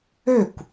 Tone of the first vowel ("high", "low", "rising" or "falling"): falling